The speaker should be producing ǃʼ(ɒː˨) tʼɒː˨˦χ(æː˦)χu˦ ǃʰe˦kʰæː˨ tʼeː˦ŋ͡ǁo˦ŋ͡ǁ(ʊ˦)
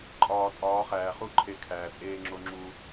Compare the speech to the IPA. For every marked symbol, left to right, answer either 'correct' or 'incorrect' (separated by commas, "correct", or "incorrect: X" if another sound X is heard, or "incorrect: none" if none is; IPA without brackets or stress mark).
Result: correct, incorrect: æː˨, incorrect: u˦